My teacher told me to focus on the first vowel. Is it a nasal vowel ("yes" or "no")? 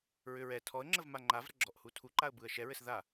no